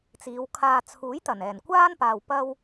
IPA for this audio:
t͡siː˨˧wkʰaː˧ t͡sʰuː˨˥jt̪ɐ˨˩nɛː˨˩nkʷaː˥n paː˧wpɐ˥w

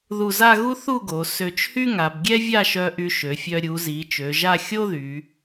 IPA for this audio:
ðu˧˩za˥˧ɣu˥ θu˥˧ɡo˩˧ sø˧˩t͡ʃhy˥ŋa˩˧b ɡʲɛ˥vʲa˥˧ʃœ˧ ʔy˧ʃø˩˧fʲœ˧ ɾʲu˩˧zi˩˧ t͡ʃø˩˧ʒa˥˧ xʲo˥ðy˩˧

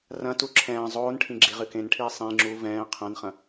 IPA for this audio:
rɐ̃tu ǁʰɛ̃ː zˤoːnʈʰĩ ɡ͡ǁiʁɨkẽnʈʰiː sˤĩŋ͡ǁuː vɛ̃ː qʰɐ̃nχɐ̃

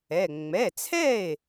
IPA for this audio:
ɛ˩˧˩ ŋ͡mɛ˩˧˩t͡sʰɛ˥˩e̯

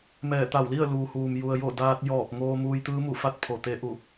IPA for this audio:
mɛː˧˩ t̪a˧˩wli˥˨ə̯ luː˩huː˩m ju˩ə̯jo˧˩ daː˧t̚ jɔː˧˩p̚ŋoː˧ muː˧jt̪ɯː˧˥mu˧˩fa˥˨t̚ pʰo˧˩t̪e˧˥ʔu˧˩

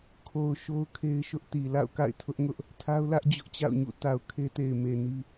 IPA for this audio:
kʰo˨ʊ̯ ʃo˦ʊ̯kʰe˦ɪ̯ʃʊ˦ʔti˨ la̰˦˨ʊ̯ka̰˦˨ɪ̯tʰʊ˦ʔŋʊ˦ʔ | tʰa˦ʊ̯lä˦ʔd͡ʑʊ˦ʔ t͡ɕa̰˦˨ʊ̯ɲṵ˦˨ ta˨ʊ̯ kʰe˦te˨ɪ̯ me˨ni˦

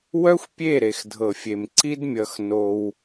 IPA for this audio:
wœ˦xʷpʲe˦˨ ɾe˨xdʱɤ˨fʲe˨m ǀi˦dmʲʌ˧xno˧w

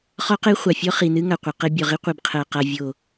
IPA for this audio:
χɔ˦qe˦ χʷa˨fʲɔ˦χi˨nɨ˦ ŋa˨qʷɨ˨ qe˦ bʲɔ˨ʁi˦ qʷi˨bqʰɜ˨qa˨ vʲo˨

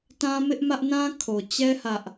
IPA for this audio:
tã˦mɪ˦ʔmä˦ʔ nã˦kʰo˨ t͡ɕɛ˦ hä˦ʔ

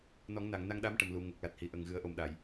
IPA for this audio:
nɔ˨˩˦ŋna˨˩˨ŋ na˧ŋɗa˧˥mʈə˨˩mlu˨˩˨ ŋə˨˩k̚la˨˩t̚hi˨˩ ʔə˨˩ŋɣɨ˨˩˦ə̯ʔo˨˩mɗa˨˩˨j

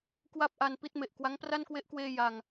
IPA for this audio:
kwa˥˩p̚ʔa˧n pi˥˩t̚me˨˩ʔ kwa˦˥ŋpra˥˩nkwe˦˥ʔkweː˧ ja˨˩ŋ

